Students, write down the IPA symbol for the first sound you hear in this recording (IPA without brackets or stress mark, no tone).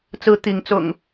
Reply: t͡s